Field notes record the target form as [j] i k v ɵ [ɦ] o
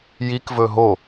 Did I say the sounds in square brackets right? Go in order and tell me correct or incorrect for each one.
correct, correct

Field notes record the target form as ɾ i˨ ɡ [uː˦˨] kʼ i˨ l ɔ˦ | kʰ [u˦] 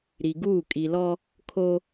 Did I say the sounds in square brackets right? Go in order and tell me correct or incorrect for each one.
correct, incorrect

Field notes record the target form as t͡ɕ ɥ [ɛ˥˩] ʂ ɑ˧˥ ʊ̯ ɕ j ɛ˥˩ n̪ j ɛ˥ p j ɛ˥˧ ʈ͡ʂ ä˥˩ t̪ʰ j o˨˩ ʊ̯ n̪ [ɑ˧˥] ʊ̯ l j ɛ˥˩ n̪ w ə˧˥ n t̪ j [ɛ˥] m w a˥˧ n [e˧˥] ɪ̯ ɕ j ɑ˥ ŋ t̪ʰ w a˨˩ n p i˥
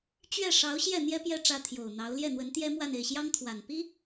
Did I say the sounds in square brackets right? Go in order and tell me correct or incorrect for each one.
correct, correct, correct, incorrect

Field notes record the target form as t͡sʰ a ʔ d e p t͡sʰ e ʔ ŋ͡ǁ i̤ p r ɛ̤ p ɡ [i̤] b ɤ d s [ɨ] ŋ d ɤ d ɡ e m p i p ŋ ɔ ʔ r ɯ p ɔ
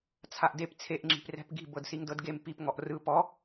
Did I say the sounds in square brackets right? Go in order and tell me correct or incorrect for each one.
correct, incorrect

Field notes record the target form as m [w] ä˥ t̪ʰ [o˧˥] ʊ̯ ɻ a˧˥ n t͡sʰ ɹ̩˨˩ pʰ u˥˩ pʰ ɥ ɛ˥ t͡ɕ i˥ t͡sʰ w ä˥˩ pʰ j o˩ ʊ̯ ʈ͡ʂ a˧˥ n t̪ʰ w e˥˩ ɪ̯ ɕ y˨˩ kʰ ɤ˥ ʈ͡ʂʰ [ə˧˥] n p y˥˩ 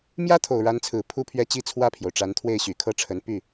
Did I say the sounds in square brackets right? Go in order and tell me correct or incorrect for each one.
incorrect, incorrect, correct

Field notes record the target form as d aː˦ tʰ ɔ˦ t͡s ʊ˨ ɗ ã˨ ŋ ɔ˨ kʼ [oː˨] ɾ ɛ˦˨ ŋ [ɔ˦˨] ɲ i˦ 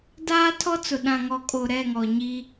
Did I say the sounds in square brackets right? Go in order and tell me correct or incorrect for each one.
incorrect, incorrect

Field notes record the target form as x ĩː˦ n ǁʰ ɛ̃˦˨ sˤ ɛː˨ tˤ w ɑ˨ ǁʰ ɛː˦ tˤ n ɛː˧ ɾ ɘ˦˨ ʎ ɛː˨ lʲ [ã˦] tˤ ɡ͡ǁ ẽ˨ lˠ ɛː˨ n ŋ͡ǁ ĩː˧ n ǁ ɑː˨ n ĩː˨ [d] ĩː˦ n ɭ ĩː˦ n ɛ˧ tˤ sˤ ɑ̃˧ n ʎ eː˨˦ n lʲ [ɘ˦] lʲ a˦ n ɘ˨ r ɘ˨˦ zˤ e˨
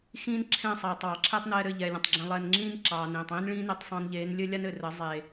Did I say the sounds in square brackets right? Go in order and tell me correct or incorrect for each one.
incorrect, incorrect, correct

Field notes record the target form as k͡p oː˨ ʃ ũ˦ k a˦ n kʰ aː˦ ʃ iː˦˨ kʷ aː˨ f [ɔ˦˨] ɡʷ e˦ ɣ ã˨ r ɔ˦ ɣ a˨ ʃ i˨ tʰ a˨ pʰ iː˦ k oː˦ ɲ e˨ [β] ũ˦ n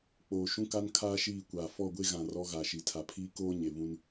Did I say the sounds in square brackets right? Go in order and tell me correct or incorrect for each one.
correct, correct

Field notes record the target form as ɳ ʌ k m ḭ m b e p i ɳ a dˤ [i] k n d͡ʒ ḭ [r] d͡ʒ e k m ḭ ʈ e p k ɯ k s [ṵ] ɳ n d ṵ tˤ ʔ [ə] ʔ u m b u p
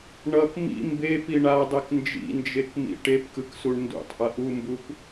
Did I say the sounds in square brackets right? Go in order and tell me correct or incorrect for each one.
incorrect, incorrect, incorrect, incorrect

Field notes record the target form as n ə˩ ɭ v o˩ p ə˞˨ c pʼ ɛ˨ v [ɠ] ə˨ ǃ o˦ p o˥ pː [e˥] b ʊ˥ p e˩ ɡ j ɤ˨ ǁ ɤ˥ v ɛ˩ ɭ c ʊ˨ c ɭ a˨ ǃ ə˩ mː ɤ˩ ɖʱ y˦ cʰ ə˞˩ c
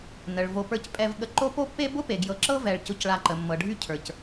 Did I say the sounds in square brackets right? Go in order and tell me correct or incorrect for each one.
correct, correct

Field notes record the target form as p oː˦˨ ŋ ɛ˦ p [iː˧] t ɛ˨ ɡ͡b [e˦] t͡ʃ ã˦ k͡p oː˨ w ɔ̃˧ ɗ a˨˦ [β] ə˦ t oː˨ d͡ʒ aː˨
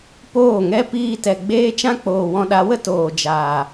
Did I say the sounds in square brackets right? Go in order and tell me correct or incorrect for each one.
correct, incorrect, incorrect

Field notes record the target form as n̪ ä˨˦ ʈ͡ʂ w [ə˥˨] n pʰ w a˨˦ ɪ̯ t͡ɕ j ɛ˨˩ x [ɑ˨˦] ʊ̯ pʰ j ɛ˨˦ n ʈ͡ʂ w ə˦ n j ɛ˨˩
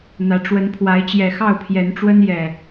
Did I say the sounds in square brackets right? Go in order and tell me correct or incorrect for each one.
incorrect, incorrect

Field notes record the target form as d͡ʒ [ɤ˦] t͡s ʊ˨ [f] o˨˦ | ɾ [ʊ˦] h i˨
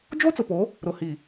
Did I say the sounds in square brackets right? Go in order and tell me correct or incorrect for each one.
incorrect, incorrect, incorrect

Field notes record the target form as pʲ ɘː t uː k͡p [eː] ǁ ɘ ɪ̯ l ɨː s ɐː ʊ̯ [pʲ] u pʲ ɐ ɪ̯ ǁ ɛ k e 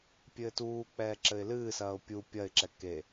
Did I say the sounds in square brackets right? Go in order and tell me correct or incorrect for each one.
incorrect, correct

